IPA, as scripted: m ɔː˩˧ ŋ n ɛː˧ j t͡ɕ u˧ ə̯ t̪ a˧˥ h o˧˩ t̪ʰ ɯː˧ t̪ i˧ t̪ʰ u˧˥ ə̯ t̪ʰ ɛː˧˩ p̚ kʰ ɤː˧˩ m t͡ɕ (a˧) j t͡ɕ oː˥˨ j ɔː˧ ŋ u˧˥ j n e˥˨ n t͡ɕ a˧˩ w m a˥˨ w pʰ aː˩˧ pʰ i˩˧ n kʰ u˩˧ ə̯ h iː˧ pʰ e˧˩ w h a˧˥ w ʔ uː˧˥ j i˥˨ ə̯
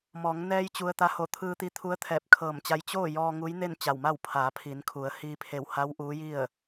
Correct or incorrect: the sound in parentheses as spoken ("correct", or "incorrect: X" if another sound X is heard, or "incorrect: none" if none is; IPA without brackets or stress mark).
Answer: correct